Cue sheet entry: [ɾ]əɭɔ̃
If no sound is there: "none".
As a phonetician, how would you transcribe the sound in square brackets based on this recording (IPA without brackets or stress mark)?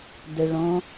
d